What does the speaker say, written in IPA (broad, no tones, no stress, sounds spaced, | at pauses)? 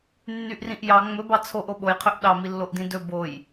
nː y ʔ r ĩ ʔ j ɑ ŋ͡m ɵ b ɑ t͡sʰ o ʔ o ɓ o j qʰ ø ʔ ɗ ɑ m i lː o ʔ d ĩ d ɵ b o j